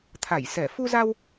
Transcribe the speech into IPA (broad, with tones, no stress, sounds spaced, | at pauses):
t̪ʰ a˧˩ j s ɛ˧˩ f u˧ z a˧ w